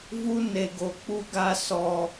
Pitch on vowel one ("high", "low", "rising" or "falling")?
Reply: high